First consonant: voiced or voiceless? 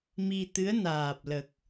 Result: voiced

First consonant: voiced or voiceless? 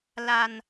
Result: voiced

